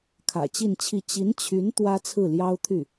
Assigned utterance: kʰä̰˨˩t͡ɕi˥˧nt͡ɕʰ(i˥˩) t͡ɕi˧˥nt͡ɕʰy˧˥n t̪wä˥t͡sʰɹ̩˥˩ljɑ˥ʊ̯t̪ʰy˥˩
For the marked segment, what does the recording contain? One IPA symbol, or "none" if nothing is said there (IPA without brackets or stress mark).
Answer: i˥˩